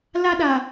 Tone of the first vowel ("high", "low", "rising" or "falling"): high